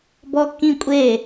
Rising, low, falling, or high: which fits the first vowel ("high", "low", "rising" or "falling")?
high